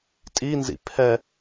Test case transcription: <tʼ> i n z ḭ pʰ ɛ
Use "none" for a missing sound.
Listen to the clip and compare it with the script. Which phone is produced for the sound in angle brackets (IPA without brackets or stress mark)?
tʼ